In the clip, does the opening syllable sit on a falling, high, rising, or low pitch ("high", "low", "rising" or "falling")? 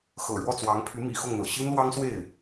low